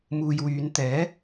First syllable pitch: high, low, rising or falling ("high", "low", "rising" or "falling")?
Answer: low